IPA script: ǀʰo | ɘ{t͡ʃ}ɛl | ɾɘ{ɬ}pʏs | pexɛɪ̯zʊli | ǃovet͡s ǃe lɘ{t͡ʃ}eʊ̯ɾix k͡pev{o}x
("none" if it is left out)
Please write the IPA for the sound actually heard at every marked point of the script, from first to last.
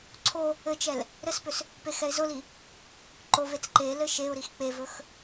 t͡ʃ, s, ʃ, ɵ

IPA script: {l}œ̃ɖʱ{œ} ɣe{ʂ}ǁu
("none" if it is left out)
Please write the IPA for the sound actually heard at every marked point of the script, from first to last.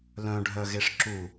l, œ, ʂ

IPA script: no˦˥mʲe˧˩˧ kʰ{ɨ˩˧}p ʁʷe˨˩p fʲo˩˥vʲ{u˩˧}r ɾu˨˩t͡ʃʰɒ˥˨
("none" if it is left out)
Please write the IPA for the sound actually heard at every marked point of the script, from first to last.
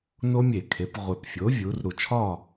e˩˧, u˩˧

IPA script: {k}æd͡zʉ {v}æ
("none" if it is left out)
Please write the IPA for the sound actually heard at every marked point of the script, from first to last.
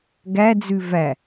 ɡ, v

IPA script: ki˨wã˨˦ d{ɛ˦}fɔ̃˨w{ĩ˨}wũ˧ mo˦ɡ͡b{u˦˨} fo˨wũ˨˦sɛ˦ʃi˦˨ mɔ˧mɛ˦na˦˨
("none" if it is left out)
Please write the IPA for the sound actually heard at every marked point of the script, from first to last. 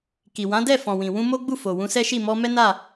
ɛ˦˨, ĩ˨, u˦˨

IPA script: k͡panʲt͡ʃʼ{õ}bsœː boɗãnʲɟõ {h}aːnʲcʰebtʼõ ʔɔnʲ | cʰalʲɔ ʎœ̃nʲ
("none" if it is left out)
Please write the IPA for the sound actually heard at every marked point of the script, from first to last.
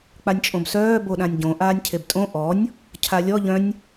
õ, ʔ

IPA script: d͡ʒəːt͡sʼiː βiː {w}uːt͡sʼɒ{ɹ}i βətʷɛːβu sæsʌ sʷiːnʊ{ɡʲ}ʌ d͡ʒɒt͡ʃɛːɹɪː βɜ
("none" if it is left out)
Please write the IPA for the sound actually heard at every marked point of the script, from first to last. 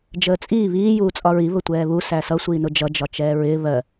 j, ɹ, d͡ʒ

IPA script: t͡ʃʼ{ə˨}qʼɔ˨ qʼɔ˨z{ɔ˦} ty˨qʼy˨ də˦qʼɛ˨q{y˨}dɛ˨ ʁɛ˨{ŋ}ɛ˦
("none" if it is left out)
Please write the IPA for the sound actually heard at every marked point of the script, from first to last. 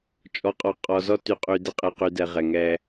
ɔ˨, ɔ˦, y˨, ŋ

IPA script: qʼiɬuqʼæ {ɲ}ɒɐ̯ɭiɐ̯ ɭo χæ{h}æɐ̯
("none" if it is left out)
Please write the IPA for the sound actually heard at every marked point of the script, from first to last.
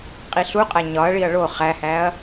ɲ, h

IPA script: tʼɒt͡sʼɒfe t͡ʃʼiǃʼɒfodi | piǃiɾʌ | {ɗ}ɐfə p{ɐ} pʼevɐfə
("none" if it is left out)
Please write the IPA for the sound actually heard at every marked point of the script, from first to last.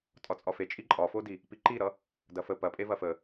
d, ɐ

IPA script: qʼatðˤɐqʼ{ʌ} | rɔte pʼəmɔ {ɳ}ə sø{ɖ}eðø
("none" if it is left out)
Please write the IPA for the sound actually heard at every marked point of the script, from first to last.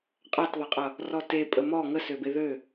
ʌ, ŋ, b

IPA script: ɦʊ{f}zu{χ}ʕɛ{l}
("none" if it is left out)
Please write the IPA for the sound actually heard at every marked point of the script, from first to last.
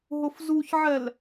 f, ç, l

